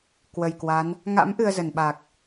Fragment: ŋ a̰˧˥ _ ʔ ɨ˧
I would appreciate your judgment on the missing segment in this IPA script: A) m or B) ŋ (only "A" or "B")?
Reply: A